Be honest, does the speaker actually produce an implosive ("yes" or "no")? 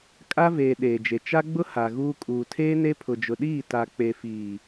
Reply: yes